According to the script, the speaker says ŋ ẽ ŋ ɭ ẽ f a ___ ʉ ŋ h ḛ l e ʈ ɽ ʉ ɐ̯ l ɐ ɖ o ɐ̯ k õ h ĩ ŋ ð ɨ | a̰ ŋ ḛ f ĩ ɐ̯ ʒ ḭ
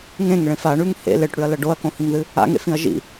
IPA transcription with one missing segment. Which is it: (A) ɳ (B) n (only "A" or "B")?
A